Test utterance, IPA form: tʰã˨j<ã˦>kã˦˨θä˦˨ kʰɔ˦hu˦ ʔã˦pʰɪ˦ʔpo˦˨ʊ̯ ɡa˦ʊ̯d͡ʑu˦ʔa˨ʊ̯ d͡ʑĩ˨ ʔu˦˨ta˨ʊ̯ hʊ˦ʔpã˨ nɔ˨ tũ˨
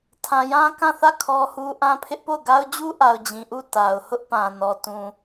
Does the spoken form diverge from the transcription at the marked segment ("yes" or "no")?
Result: no